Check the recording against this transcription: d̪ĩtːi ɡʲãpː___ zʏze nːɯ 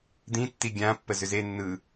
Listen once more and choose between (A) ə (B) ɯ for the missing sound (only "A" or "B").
A